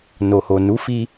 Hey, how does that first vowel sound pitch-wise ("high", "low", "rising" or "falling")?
low